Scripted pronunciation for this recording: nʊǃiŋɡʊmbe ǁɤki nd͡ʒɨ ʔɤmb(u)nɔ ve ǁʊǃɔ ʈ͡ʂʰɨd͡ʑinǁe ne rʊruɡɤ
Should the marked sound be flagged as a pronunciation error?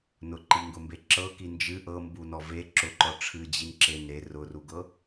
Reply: no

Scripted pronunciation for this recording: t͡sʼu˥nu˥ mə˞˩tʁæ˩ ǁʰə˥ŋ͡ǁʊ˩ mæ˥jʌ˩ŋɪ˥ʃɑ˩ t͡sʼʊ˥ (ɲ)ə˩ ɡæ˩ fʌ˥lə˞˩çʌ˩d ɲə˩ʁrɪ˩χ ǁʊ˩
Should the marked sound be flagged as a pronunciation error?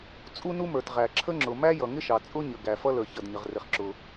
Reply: no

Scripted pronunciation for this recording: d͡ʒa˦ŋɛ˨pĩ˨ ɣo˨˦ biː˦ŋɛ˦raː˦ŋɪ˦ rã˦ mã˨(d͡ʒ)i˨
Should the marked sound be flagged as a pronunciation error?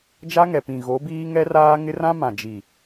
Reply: no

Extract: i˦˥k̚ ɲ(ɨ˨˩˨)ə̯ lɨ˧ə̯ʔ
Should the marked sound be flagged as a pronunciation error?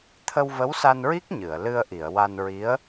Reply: no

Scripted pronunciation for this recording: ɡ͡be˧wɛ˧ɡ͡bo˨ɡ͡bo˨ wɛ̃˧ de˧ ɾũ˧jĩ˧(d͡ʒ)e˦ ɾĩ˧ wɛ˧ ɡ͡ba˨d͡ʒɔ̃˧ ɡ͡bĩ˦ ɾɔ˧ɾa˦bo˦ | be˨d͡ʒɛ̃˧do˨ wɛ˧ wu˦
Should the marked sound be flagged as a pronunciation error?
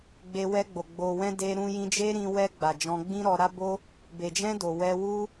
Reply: no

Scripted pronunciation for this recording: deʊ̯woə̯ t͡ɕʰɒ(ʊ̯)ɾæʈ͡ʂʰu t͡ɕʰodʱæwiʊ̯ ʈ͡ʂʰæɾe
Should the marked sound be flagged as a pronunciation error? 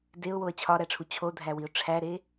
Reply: yes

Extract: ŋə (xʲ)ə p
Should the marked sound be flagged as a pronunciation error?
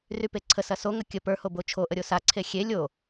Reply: yes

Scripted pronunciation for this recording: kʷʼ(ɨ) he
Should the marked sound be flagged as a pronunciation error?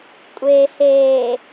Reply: yes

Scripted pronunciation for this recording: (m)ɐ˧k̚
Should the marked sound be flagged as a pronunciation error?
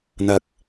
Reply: yes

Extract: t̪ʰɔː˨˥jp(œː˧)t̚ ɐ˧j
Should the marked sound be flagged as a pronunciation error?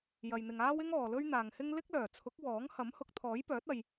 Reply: yes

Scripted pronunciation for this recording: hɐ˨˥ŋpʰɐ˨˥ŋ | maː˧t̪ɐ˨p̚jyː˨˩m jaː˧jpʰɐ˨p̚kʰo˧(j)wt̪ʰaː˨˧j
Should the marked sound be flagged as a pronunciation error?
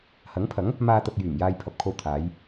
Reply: yes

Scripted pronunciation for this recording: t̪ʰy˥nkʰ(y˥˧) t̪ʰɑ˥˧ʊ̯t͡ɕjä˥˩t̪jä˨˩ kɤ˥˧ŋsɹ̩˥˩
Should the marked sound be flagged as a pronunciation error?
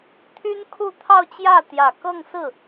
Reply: yes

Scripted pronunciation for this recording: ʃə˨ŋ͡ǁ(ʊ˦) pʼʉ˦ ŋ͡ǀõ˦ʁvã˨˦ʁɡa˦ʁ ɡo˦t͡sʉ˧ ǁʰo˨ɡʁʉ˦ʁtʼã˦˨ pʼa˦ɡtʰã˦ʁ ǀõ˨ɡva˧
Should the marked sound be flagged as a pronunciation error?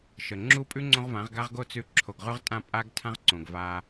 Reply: yes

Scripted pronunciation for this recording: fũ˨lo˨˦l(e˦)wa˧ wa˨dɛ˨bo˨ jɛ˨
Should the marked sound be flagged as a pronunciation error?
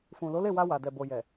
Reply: yes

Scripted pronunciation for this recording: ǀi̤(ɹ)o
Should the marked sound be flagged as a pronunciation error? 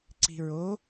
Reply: no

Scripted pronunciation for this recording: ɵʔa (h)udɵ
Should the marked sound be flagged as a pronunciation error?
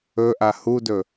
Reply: no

